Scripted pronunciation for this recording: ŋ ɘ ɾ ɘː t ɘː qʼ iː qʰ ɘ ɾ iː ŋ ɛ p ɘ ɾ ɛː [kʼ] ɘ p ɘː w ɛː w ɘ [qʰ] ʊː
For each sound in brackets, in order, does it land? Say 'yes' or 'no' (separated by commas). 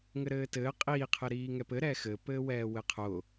no, yes